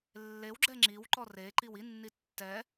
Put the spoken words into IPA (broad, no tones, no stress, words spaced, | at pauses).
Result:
lːewɡ͡ǁɛ ŋ͡ǁiwǃɔ reǃiw inːi tːɛ